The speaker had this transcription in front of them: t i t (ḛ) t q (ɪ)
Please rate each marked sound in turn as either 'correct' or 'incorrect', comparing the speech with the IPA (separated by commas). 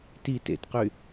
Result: correct, incorrect